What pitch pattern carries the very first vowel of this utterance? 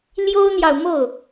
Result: high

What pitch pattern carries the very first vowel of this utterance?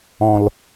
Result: low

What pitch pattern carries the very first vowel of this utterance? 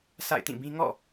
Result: falling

